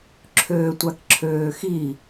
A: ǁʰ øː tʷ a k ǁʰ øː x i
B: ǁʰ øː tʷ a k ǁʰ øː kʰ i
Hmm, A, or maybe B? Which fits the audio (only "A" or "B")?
A